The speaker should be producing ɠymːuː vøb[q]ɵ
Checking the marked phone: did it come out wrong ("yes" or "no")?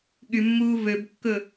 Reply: yes